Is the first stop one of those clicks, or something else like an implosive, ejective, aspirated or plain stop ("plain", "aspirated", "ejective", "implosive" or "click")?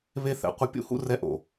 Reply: plain